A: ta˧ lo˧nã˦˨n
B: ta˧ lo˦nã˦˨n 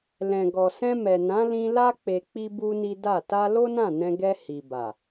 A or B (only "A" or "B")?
B